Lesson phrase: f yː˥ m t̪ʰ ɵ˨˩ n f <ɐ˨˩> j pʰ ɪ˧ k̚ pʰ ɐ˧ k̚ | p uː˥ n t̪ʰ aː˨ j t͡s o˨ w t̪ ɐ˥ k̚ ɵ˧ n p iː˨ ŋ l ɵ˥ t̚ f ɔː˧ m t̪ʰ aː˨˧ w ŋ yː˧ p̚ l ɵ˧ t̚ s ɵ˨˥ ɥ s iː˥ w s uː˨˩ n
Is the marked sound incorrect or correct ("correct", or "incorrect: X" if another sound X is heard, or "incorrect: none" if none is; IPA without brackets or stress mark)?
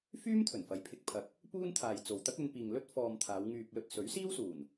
incorrect: ɐ˨˥